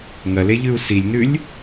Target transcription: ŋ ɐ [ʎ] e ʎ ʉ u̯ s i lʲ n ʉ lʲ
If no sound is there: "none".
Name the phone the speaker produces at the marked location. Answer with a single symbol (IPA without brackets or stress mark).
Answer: l